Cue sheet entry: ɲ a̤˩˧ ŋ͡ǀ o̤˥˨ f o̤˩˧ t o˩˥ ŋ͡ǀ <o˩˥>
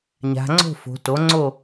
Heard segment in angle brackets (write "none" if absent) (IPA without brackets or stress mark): o˥˨